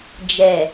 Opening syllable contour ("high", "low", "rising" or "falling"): low